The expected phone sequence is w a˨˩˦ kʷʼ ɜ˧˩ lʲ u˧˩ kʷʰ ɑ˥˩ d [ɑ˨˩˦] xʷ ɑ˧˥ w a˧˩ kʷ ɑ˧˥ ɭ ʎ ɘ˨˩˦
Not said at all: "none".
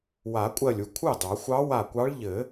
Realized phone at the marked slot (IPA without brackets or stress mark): ɑ˨˩˦